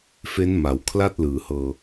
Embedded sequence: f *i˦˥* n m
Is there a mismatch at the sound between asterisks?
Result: yes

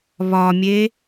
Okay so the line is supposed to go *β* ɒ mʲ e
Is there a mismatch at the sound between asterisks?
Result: no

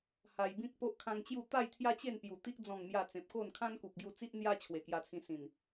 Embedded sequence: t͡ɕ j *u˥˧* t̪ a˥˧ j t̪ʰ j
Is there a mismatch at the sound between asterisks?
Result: no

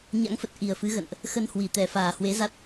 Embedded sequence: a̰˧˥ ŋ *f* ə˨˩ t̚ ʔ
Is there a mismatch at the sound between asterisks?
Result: no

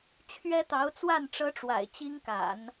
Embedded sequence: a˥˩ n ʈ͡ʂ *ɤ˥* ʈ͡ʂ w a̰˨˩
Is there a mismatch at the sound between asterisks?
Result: no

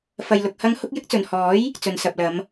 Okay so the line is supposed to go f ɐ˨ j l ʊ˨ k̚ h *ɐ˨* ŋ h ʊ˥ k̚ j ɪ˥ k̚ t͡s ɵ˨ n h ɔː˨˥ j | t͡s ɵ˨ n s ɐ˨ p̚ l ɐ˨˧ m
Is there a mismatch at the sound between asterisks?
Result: yes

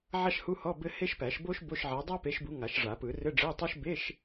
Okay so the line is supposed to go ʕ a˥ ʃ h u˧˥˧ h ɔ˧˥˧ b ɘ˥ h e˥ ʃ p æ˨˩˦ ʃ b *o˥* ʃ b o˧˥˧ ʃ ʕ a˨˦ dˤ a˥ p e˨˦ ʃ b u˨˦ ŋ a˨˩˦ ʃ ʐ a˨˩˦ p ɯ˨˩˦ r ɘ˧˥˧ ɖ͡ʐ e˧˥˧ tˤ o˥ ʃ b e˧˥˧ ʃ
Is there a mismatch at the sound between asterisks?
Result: no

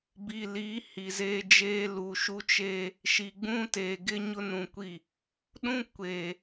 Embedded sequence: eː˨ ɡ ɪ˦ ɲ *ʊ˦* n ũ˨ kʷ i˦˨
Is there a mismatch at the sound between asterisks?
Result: no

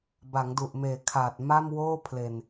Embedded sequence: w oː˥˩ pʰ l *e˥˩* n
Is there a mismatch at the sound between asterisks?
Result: yes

